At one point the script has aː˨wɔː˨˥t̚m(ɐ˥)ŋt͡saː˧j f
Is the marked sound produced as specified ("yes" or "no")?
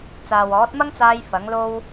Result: yes